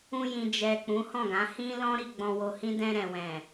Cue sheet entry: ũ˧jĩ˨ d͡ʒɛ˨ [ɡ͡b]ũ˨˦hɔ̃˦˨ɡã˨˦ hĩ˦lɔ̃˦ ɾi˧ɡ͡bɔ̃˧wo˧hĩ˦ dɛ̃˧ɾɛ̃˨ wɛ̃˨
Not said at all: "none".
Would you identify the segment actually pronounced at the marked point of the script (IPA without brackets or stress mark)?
k͡p